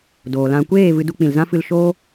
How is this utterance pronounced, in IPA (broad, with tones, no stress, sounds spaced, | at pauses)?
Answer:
d oː˨ l ã˧ kʷ eː˦˨ v ɨ˧ d u˧ k͡p ĩ˨ l z ã˦ f ɨ˧ l ʃ oː˦